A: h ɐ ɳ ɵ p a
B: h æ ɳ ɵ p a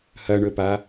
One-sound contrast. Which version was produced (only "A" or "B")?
A